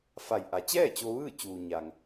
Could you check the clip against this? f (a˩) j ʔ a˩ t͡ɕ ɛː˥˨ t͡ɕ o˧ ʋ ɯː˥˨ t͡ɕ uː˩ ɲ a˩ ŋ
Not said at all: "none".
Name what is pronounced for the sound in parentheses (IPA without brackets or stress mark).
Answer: a˧˩